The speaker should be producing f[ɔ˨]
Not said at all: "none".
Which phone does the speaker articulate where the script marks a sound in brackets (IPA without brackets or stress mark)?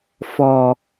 ɔ˨